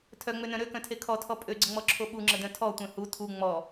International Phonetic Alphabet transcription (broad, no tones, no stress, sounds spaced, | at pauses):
tʰ œ ŋ͡m ø n œ̃ ɾ ø k œ̃ tʰ e kʰ ɔ tʰ ɔ pʼ ø ɡ͡ǀ ə ŋ͡m ɔ ǁʰ o ɓ u ŋ͡ǁ ə d œ̃ tʰ ɔ tʷ œ̃ h u tʰ u ŋ͡m ɔ